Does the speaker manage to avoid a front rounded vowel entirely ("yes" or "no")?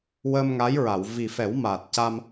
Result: yes